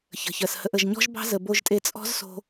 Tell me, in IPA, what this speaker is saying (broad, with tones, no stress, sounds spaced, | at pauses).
ç ə̤˨ ç ɜ˨ s h ə˧ ʔ ə˨ ʒ ɲ ɔ̤˦ ʒ b ɑ̤˦ z ə˨ b o˧ ʒ tʼ e˧ t͡sʼ ɔ̤˦ z s o̤˧